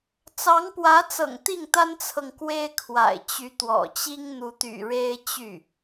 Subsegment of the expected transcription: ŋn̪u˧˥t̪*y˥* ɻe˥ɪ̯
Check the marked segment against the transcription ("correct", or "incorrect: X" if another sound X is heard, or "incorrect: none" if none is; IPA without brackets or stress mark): incorrect: y̰˨˩